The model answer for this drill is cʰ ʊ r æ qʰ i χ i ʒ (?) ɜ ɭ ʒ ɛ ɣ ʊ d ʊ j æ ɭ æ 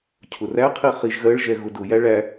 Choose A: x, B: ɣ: B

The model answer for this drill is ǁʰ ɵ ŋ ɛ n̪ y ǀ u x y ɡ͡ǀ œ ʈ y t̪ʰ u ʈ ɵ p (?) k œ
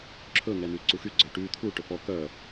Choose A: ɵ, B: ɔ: B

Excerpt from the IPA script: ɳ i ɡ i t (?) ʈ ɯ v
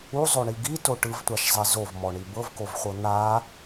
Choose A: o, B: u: A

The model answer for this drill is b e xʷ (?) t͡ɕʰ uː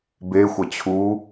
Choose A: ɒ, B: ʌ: B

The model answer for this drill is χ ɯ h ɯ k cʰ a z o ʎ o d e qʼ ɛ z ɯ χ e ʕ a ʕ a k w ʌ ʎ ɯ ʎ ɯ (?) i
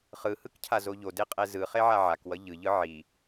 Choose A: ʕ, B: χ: A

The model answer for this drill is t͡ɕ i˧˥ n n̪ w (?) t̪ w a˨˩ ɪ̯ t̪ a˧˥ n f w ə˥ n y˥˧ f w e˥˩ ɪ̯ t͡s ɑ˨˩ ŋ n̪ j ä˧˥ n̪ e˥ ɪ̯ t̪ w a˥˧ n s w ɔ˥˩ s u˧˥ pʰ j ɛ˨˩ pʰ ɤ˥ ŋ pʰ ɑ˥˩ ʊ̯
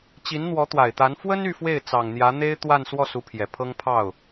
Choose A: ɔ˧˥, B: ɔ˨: A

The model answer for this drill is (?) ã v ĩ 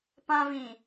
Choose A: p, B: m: A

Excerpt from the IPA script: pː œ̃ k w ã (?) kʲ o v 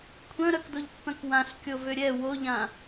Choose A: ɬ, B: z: A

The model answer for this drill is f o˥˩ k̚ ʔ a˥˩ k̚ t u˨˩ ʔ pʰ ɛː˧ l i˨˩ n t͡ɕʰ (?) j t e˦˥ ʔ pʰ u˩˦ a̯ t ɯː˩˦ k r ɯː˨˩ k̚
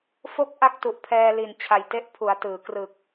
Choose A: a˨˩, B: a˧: A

